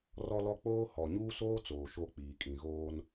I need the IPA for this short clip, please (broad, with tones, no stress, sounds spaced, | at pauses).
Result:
r ɔ˦ l ɔ˦ k͡p oː˦ h ɔ˨ ɲ uː˦ s oː˦ t͡s oː˨ ʃ o˦˨ k͡p iː˨ kʼ ĩ˨ ɣ oː˦ n